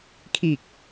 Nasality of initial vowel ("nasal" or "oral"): oral